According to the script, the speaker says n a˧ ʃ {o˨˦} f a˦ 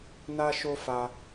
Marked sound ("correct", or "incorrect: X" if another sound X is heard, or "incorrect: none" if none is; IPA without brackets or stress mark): incorrect: o˦